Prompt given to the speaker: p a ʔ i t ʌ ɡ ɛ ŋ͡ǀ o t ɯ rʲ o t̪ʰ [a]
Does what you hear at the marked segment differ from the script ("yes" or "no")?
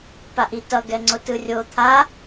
no